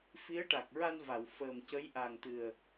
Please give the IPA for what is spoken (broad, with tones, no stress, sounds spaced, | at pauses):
f i˧˥ ə̯ ʈ a˨˩ k̚ ɹ a˧ n v a˨˩˨ w f əː˨˩ m c ə˧˥ j ʔ a˨˩ ŋ t̪ ɨ˨˩ ə̯